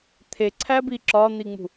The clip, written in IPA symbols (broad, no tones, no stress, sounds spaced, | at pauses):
t̪ʰ e ǀʰ æ b i ǁ ɒ n̪ i ŋ͡m ṳ